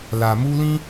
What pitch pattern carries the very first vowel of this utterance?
low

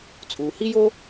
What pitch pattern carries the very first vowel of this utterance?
low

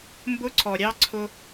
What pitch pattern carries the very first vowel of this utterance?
high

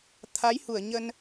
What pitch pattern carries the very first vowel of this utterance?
rising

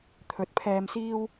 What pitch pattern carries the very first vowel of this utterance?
rising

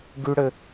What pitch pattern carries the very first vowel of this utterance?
high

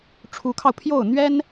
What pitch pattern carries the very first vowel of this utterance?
rising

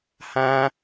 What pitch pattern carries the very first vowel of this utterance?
high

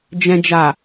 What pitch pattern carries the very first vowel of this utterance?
low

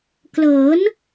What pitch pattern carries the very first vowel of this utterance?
rising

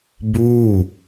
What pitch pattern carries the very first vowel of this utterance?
falling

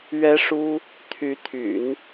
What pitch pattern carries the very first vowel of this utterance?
high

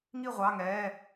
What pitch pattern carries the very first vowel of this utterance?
falling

